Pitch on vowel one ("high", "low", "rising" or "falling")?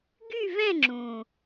falling